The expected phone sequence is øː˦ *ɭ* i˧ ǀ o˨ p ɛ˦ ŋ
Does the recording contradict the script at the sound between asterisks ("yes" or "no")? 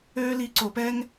yes